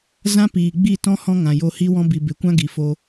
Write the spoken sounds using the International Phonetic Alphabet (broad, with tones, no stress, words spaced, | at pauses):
zã˦piː˨ɡ͡bi˦˨tɔ̃˦ hɔ̃˦ŋã˨jo˧ hi˦wɔ̃˦bi˨ be˨kʷã˦ ɡi˨fo˧